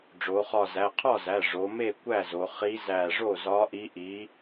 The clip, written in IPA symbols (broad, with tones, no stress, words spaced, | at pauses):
ɖ͡ʐo˩˧χɒ˧˩zæ˩˧˩ qʰɒ˥˩zæ˩˧˩ ʐo˩˧me˥˩ kʷæ˥˩zo˩˧ χi˧˥ zæ˧˩ʐo˥˩zɒ˧˥ʔi˧˥ ʔi˧˥